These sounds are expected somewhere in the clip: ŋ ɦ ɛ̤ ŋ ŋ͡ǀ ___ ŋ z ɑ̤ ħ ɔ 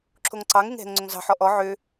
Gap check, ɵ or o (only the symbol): ɵ